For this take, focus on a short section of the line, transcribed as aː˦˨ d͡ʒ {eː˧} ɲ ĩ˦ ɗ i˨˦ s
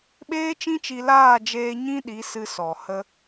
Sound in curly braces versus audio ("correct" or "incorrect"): correct